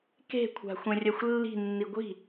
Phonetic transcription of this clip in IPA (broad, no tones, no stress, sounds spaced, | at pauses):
k e̤ kʷʰ a̤ xʷ ẽ rʲ ɛ xʷ lː i̤ nː i ɡʷ i̤